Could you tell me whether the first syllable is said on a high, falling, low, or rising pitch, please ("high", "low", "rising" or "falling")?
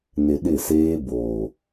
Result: low